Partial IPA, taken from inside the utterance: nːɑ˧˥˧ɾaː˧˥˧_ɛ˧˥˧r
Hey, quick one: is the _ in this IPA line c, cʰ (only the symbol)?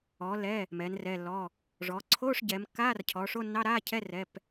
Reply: cʰ